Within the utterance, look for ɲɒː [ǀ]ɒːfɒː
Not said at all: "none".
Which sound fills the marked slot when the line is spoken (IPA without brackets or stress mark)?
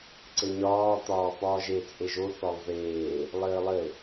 t̪